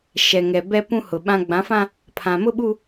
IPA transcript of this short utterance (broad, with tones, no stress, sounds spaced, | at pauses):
ʃ ɛ˨ ŋ ɛ˨ b ɛ˦ p ũ˦ h ʊ˨ ɓ ã˦ ɡ͡b ã˨˦ f ã˦ | pʰ ã˨ m ʊ˦ ɓ u˦